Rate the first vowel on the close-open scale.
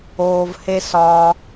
mid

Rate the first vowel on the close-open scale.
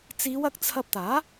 close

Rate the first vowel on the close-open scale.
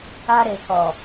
open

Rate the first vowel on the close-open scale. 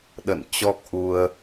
mid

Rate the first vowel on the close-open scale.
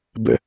mid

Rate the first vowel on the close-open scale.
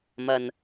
open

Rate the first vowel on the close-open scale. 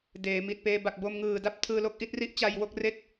mid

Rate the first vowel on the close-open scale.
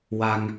open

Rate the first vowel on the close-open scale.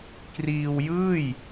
close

